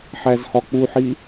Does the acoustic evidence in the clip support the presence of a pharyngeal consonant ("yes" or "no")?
yes